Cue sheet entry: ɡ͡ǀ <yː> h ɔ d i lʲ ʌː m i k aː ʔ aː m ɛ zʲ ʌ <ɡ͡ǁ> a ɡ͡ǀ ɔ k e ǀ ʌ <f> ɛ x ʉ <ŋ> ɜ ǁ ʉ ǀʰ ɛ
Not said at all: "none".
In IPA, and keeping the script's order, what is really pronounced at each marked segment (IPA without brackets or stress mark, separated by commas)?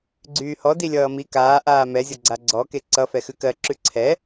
yː, ɡ͡ǀ, f, k